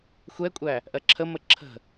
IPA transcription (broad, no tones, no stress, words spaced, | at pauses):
xʷɛkʷʼæ | ʔɜǁʰəmə ǁʰə̤